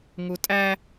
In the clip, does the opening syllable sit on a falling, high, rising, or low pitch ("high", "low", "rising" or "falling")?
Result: high